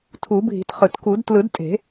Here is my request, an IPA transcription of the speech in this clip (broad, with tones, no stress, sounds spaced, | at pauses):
tʰ u˨˩˦ bʱ i̤˨˩˦ t χ ɯ˨˩ t k u˨˩˦ d t l ɯ˨˩˦ d tʼ e̤˨˩˦